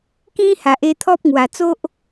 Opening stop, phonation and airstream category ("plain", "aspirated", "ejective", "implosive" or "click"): plain